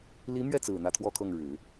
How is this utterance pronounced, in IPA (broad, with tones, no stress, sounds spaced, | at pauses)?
l i˧˥ m ɥ ɛ˥˩ t͡s ɹ̩˨˩ n̪ ä˥˧ t̪ʰ w ɔ˥˧ kʰ ɤ˥˩ ŋ ɻ ɻ̩˨˩˦